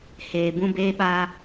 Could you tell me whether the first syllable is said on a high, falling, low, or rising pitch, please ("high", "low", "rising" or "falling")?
low